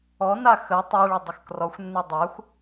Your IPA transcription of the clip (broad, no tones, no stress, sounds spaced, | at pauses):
ɔ n a x ə tˤ ɛ ɭ ʊ dˤ ʊ x k r ɔ xʷ nː e dˤ a xʷ